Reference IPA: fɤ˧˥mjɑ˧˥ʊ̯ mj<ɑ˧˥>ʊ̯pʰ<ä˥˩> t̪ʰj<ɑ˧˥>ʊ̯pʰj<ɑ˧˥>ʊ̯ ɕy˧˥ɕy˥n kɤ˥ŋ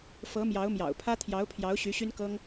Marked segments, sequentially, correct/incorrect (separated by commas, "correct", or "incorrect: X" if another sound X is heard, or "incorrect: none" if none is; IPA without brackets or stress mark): incorrect: ɑ̰˨˩, incorrect: ä˥, correct, correct